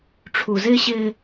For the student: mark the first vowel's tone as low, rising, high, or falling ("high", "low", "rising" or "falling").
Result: low